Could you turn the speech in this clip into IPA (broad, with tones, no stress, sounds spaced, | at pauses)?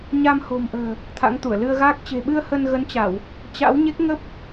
ɲ a˧ m h o̤˨˩ m ʔ ə̤ː˨˩ | t̪ʰ a̰˧˥ ŋ t̪ u˧˩ ə̯ l ɨ˧ ə̯ ɣ aː˦˥ k̚ t͡ɕ e̤˨˩ ɓ ɨ˧ ə̯ h ə˧ n ɣ ə˨˦ n t͡ɕ a˧˩˨ w | t͡ɕ a̰˧˥ w ɲ e˦˥ k̚ ŋ ə˦˥ p̚